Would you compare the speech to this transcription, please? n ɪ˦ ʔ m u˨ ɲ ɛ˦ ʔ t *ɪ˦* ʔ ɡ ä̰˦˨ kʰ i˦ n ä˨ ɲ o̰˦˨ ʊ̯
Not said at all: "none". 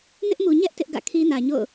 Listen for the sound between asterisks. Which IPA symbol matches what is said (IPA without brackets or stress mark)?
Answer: ɪ˦